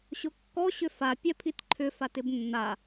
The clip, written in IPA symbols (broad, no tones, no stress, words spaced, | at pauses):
ɕʊkːɔ ɕʏfa pʲɛpʰitǃʰʏ fatɪbnːa